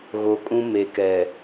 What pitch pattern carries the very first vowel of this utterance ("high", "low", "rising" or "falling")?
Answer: low